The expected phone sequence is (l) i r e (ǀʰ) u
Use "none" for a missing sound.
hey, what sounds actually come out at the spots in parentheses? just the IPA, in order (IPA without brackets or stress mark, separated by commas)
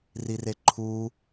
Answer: r, ǃʰ